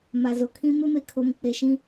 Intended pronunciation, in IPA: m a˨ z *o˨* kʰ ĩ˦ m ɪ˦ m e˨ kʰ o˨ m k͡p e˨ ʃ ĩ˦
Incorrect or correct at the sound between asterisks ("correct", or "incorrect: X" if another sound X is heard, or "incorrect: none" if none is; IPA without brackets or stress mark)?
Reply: correct